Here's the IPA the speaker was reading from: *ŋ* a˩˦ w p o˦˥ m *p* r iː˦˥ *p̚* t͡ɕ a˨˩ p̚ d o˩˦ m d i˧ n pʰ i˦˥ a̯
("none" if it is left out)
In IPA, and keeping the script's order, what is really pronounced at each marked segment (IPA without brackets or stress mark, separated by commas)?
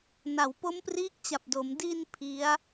n, p, k̚